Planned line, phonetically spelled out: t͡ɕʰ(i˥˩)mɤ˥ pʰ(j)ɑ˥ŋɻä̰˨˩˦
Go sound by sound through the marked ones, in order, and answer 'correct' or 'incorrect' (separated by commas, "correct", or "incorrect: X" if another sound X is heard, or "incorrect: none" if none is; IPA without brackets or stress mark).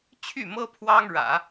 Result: incorrect: y˥˩, incorrect: w